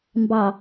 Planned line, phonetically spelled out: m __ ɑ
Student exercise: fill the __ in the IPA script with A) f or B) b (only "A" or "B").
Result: B